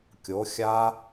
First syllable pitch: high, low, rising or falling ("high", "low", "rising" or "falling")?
rising